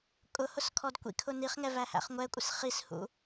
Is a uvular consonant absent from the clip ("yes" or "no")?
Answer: no